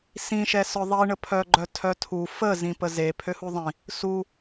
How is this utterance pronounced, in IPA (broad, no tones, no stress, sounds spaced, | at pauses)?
s ĩ ʃ ɛ s œ ðˤ i ɳ ə pʰ œ ɡ͡ǃ œ tʰ œ tʰ u f ə z ĩ p ə z e pʰ ø h u ðˤ ĩ | s u